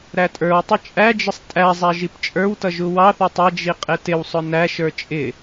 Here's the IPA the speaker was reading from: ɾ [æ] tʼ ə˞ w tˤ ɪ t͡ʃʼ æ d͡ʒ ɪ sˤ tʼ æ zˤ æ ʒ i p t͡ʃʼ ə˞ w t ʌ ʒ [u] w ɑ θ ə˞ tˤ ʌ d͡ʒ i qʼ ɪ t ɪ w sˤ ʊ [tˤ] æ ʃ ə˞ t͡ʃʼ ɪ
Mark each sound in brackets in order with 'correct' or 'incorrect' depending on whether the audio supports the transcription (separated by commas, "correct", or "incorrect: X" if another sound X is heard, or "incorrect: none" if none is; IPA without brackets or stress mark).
correct, correct, incorrect: n